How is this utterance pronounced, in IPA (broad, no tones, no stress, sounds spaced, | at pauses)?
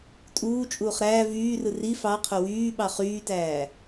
tʼ uː t͡ʃʼ uː χ ɾ æː v yː r ɯ r i f ɑ qʰ o w yː ɓ ɑ χ yː t æː